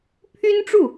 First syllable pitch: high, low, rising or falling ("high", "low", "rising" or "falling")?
high